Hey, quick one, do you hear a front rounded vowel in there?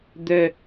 yes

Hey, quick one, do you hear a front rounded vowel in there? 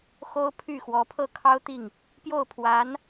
yes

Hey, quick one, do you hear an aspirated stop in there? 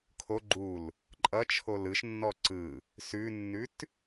yes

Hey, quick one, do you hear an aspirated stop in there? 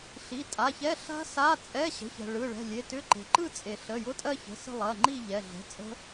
no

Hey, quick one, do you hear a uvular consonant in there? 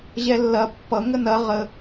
yes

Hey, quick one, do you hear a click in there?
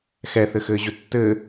no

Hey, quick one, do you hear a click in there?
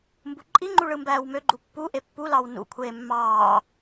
yes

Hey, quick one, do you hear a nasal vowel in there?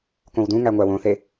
yes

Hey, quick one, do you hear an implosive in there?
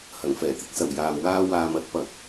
no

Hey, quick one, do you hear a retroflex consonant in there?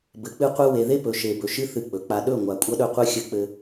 no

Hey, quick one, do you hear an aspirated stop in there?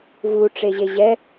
no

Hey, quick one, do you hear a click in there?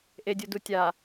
no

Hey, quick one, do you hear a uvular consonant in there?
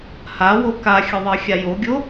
no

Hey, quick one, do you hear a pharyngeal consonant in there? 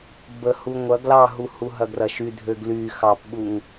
no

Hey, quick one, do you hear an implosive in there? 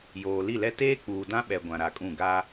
yes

